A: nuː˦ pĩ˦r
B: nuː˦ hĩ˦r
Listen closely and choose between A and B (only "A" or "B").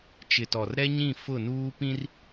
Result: A